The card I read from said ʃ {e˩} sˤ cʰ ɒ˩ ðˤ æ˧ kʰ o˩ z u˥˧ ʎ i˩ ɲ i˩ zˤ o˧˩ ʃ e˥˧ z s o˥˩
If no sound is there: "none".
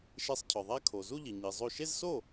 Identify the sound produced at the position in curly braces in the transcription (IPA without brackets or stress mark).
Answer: e˧